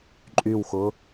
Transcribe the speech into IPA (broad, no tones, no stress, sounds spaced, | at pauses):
ǃʼ y w x ʊ